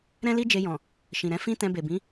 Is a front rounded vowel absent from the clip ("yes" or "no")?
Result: yes